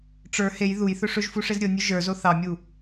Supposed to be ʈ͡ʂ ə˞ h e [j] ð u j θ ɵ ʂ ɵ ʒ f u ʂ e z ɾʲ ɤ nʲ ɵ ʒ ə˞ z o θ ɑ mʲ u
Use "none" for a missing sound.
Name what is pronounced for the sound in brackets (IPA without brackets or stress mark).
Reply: j